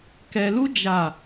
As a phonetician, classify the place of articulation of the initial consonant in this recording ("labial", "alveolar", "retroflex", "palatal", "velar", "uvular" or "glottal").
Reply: velar